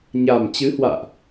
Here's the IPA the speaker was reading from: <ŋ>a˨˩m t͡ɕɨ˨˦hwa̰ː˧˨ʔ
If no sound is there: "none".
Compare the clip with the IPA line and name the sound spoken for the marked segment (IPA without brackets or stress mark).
ɲ